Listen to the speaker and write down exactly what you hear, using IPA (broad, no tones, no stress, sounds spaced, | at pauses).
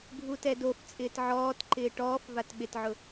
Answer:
ɡʱ u t ɛ d o f t͡sʼ ɪː t ʕ ɔː t ǃ ɪː ʈ ɔː f v a t ɓ ɪ t ʕ ʊ